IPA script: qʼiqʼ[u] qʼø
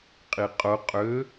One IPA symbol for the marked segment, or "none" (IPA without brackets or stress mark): ʊ